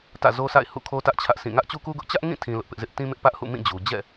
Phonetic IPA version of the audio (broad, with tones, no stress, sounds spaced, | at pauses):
t ä̰˦˨ z o˦ s a̰˦˨ ɪ̯ h ṵ˦˨ kʰ o˦ t ä˦ ʔ t͡ɕʰ ä˦ ʔ sʰ ĩ˦˨ ŋ ä˦ ʔ t͡ɕ u˦ k u˦ ɡ ʊ˦ ʔ t͡ɕ ä˦ ʔ ŋ ĩ˦˨ tʰ ĩ˦ l ʊ˦ ʔ p ɪ˦ ʔ z ɪ˦ ʔ t ĩ˦ m ɪ˦ ʔ p ä˦ ʔ h ṵ˦˨ m ĩ˦˨ d͡ʑ u˨ d͡ʑ ɛ̰˦˨